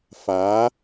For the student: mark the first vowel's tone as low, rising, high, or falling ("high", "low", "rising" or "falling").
rising